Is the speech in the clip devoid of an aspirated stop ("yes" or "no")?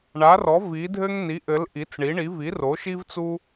yes